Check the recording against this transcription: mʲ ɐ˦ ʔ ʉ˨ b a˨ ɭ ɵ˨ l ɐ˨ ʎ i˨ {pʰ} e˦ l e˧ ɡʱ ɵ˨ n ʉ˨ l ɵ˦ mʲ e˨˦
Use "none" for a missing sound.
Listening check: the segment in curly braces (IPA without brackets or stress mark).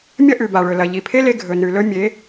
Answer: pʰ